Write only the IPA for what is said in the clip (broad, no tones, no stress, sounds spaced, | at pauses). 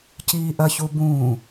c iː ʔ ɐ ç u b ũː